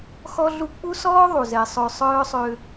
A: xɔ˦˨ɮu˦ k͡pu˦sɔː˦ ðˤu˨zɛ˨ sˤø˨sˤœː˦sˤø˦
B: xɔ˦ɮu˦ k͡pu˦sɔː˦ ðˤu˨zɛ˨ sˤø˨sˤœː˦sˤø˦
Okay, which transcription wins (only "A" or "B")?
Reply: B